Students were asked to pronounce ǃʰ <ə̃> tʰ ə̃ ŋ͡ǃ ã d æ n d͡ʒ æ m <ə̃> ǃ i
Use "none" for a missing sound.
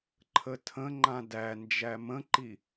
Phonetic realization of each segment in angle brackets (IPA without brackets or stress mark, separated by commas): ə, ə̃